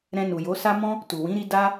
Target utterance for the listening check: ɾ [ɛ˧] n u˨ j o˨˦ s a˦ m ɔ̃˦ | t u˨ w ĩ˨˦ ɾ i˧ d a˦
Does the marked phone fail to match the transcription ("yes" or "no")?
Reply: yes